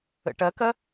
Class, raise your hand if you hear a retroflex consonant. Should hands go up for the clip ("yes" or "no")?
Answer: yes